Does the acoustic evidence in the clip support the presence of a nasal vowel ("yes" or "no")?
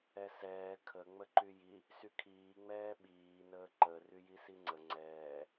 no